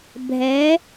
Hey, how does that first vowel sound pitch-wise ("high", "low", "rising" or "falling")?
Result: rising